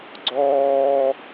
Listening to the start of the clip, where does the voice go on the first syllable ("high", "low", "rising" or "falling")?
high